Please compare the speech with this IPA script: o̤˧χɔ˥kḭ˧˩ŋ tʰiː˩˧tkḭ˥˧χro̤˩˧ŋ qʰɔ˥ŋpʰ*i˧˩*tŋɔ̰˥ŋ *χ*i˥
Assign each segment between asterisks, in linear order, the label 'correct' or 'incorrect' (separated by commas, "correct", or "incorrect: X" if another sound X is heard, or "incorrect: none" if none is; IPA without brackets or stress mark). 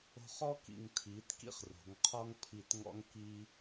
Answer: correct, incorrect: k